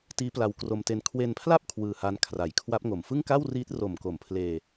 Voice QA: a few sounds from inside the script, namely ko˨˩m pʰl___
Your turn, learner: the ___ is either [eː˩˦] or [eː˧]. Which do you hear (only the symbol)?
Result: eː˧